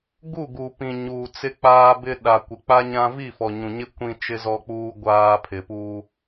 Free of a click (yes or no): yes